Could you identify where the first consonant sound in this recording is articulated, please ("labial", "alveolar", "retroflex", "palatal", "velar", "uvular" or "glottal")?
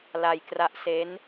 alveolar